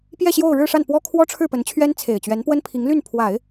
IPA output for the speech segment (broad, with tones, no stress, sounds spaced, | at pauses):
p j ɛ˥˧ ɕ j o˥˧ ʊ̯ ɻ ɻ̩˥˧ ʂ a˥˩ n p w ɔ˥ kʰ w ɔ˥ ʈ͡ʂʰ ɻ̩˥˩ p ə˧˥ n t͡ɕʰ ɥ ɛ˥ n t͡sʰ e˨˩ ɪ̯ t͡ɕ ɥ ɛ˧˥ n p w ə˥ n pʰ i˧˥ ŋ l y˥˩ n pʰ w a˨˩˦ ɪ̯